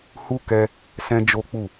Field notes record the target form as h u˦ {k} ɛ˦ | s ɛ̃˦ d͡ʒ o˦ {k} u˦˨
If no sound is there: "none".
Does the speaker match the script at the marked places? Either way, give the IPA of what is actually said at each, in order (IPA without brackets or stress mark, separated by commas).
k, k͡p